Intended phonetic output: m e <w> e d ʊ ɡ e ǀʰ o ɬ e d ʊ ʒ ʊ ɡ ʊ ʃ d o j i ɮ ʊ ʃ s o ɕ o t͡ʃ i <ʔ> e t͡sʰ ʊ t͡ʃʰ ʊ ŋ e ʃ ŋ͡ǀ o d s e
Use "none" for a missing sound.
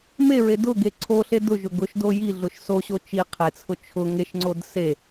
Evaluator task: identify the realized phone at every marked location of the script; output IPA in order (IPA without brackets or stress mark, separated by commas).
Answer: ɹ, qʰ